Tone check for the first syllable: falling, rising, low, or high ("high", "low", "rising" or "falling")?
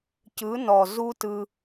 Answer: rising